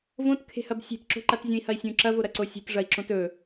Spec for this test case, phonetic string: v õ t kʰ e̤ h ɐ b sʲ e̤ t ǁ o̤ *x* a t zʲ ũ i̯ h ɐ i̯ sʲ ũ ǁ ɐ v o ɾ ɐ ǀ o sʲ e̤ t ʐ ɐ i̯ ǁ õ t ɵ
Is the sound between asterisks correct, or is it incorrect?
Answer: incorrect